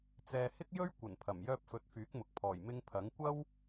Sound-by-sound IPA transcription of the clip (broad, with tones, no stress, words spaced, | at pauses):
t͡sɛː˨hɪ˥k̚jɵ˥ɥ kʷɐ˨˩npʰɐ˨˩m jœː˧p̚fɵ˨˥t̚ fyː˨˥k̚mʊ˨k̚ pʰɔː˨˩jmɪ˧ŋ pʰɐ˨˥ŋ kʷɐ˥w